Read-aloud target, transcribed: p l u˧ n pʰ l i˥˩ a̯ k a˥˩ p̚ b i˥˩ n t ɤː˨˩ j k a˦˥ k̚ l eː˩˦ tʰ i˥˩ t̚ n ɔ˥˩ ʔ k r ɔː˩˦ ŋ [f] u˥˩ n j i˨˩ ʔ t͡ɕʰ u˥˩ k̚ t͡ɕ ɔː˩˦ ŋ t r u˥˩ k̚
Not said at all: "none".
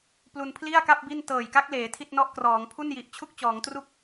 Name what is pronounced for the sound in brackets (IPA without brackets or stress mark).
pʰ